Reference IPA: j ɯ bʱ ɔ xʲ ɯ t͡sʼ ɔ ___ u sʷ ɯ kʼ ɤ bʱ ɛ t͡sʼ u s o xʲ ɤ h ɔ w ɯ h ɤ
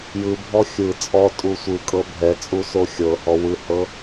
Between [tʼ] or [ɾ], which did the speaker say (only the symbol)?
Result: tʼ